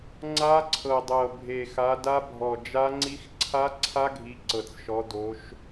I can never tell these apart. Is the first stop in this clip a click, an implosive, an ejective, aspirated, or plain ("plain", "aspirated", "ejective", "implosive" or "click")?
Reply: click